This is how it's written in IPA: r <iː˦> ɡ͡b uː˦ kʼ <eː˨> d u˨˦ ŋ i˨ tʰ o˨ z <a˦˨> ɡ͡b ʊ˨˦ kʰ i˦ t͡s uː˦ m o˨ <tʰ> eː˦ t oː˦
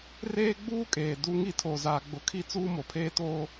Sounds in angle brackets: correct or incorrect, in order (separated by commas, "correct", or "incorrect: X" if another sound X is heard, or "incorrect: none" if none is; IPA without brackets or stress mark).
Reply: incorrect: eː˦, correct, incorrect: a˨, incorrect: pʰ